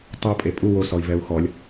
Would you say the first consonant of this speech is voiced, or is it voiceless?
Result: voiceless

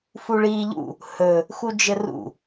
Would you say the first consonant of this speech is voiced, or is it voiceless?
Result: voiceless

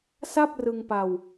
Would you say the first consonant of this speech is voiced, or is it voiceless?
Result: voiceless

